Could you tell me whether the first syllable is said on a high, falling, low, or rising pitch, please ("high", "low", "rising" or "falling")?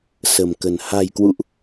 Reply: low